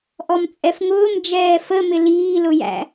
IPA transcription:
ʔɔmt͡sʼɛfŋʊːm d͡ʒɛːfəmɪ liːlʊjæ̰

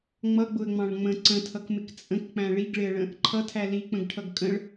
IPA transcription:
ŋ͡mʌɡ͡bʊə̯ŋ͡mɑ̃ɭ ŋ͡mə̃ ǀə̃tʰʌkmɪk t͡sʼə̃kk͡pæ̃ ɭiɡɭɪə̯ɭə̃ | ǃʰʌtʰæ lik͡pə̃ɡʈʰʌɡ kʼə̃ɭ

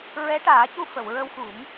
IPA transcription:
ɹɛ˧˥ʈaː˨˩˦cu˧ fə˨˩˨wɹə˧wxu˨˩˦m

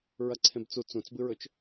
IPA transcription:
ɹɐǀʰẽbt͡su t͡sũt͡sbɨɹɵt͡ʃ

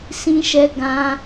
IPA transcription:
sĩ˦ʃɛ˦ ɡã˦

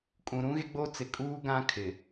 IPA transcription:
kʼũ˨ɾũ˦ɣe˦ ɡ͡bo˦ t͡sɪ˨kʼuː˦ ɡã˦kʰɪ˨

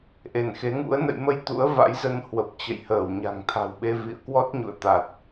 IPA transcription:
ʔe˧˩nxe˨˦ŋṵ˧˥ə̯ nə̰˧˨jmə˧j t̪ṵ˧˥ə̯va̰˧˥jzə˧n hwə˨˩p̚t͡ɕə̰˧˨jhəː˧˩w ɲa̤˨˩ŋt̪ʰa̤˨˩wɓe˧ vḭ˧˨ə̯kwɔ˦˥t̚ ɲṵ˧˨ə̯t̪a˨˩t̚

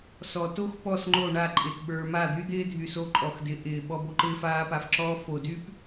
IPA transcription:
sɔ˨ to˦x pɔ˦˨sŋ͡ǃo˦˨ɳa˦˨ ǃʼɪ˨tɓə˞˨ ma˦˨d̪y˦d̪ɪː˦dʱy˨ so˦ǃʼɔ˨xdɪ˨˦ ʔɪː˨ɓɔ˦bo˦ ǃɪː˦faː˦pa˨fǁɔː˦ fo˨dy˦p

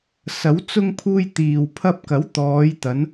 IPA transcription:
sɐ˨˥w t͡sʊ˧ŋ pʰuː˧jt̪iː˨wpʰɐ˧p̚kɐ˨˥w t̪ɔː˨˧jt̪ɐ˨˧n

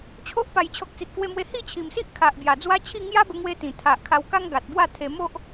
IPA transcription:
t͡ɕʰo˦ʔ pa˨˩jt͡ɕʰɔ˨k̚t͡si˨t̚ kwe˧mwe˧ hi˥˧t͡ɕʰi˨˩msi˦ʔ kʰa˨ʔ bja˨˩d͡zwa˦t͡ɕʰi˥˧ ŋja˦bə˧ŋwe˧ t̪ĩ˨˩t̪ʰa˨ʔkʰa˧wka˦ŋ ɡa˨t̚bwa˥˧ t̪ʰe˧ mo˦ʔ

